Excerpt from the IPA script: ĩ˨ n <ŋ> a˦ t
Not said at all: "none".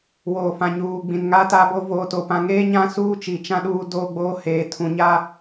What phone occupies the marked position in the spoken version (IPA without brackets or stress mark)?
ŋ